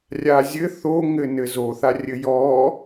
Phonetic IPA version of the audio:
rʲazʲɘ θoŋɘ nɘzoθa rʲɘjɔ

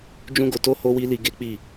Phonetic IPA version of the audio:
d͡ʒũ˦ɡo˧to˦ ho˦wi˦ li˧ɡe˦k͡pi˦˨

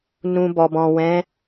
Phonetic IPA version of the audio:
nũ˧bɔ˨bɔ̃˨ wɛ̃˨˦

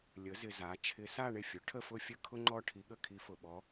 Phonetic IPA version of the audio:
lʲə˩˥zɪ˨ za˩˥ t͡ʃʰɪ˧˥ sa˥˧ɳɪ˥˩fʲʊ˩˥ʈʰə˥˧ fʊ˥˧fʲə˥ kʰʊ˥ŋ͡ǃɔ˥˧ ʈʰi˧˥ɠə˥˧kʰi˧˥ fʊ˨ɓɔ˧˥

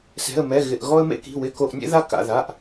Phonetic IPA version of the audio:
sɛ̤˧˥˧ə̯mɛ˧˥˧ɣɪ˧˥˧ʔ ɣɔ˥ə̯mḛ˥ki̤˧˥˧ wɪ˧˥˧ko˧˥˧ʔnʲḛ˥ ða˥ ka̰˧˥˧ða˧˥˧ʔ

